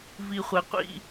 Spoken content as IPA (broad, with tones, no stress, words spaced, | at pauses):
vi˨χʷɛ˨qʷḭ˦˨